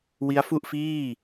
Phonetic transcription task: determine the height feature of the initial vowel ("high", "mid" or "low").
high